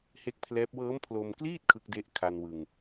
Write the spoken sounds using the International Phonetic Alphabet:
he˥˩k̚pʰlɛː˦˥p̚ wɤː˦˥mpʰlo˧mkliː˥˩t̚ kʰɯ˦˥k̚de˦˥ʔkʰa˧n wɯ˧ŋ

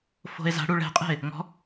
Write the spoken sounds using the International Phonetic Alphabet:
fo̤e̯za̤ɽu ɭɛ̤qʼɛ̤e̯ | ŋɔ̤

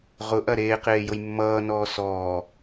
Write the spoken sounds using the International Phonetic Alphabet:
ʁʊʔɐ ɾeːqeːjʊj mːʌːnɔː sɔː

